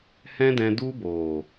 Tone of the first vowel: high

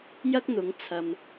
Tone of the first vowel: high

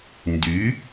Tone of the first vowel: rising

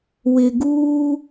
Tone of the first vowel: low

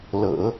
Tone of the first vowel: low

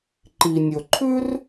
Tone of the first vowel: low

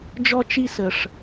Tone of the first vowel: high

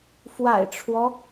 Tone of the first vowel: low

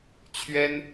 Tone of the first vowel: high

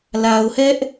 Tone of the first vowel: low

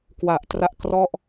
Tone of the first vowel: low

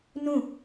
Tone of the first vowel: falling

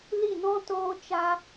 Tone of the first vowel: falling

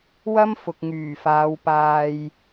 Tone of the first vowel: high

